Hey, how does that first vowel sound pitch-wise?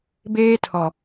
high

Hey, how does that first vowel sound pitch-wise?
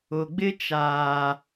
low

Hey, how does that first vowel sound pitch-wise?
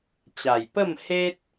low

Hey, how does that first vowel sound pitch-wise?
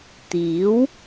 rising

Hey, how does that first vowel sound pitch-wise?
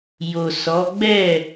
low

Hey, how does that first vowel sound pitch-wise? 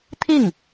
falling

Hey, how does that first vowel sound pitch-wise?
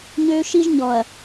high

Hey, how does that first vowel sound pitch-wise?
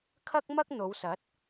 high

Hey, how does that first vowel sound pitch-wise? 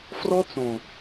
high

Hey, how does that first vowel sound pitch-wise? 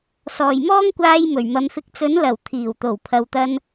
low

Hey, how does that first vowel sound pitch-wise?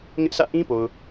high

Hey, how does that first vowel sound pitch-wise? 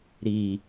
low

